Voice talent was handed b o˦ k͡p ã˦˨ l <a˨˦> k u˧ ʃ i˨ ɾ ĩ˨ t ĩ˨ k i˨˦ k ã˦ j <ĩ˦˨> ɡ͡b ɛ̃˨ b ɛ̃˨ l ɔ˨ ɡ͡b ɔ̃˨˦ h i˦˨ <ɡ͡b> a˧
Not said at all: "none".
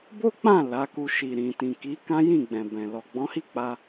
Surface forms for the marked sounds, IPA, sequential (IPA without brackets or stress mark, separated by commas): a˨˦, ĩ˦˨, k͡p